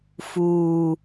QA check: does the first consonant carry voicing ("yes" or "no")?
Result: no